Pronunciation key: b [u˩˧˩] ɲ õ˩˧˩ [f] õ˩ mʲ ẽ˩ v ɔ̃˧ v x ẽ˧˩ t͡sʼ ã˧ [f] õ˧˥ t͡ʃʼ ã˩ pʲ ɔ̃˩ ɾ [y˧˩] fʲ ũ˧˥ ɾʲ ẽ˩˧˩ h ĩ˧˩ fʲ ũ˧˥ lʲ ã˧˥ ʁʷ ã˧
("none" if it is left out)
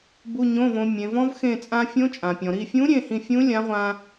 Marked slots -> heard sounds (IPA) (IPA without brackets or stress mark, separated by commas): u˩˧˩, v, fʲ, i˧˩